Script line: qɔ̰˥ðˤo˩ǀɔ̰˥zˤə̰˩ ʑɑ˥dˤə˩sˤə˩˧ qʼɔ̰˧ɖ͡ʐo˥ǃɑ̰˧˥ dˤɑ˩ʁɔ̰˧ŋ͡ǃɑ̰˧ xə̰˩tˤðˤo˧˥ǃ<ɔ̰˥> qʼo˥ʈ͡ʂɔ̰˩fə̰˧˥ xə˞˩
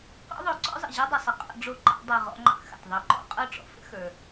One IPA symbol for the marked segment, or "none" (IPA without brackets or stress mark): ɔ̰˥